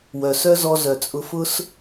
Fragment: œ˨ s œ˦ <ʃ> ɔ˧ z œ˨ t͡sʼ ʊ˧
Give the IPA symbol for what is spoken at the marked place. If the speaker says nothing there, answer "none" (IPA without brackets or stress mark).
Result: z